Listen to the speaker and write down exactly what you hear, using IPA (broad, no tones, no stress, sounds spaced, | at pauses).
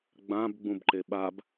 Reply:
ɡ͡b ã b ɡ͡b ũ b ǃ e ɓ a b